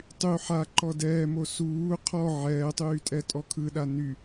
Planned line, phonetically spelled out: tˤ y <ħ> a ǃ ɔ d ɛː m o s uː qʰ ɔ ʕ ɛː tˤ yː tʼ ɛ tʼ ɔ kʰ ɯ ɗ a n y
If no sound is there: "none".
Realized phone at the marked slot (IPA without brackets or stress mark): ħ